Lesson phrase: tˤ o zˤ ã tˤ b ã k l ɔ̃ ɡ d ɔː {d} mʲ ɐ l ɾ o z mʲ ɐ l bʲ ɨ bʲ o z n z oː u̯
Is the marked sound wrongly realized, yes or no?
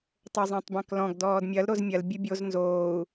no